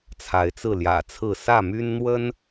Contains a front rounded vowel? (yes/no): yes